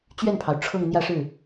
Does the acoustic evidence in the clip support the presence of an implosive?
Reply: no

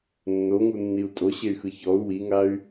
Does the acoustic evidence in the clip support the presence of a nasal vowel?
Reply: no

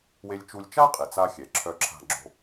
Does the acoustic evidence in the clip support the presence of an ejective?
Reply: yes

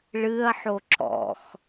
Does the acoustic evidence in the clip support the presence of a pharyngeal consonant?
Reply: yes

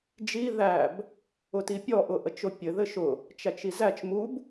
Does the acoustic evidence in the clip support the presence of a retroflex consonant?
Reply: no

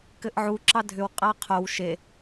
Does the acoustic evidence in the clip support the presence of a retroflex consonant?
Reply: no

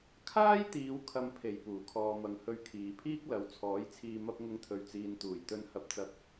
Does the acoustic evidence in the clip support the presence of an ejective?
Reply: no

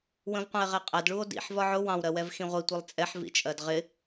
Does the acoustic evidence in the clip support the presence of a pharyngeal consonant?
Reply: yes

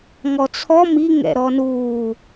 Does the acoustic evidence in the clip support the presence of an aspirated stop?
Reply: yes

